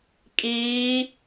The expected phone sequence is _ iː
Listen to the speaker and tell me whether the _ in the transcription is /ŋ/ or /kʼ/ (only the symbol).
kʼ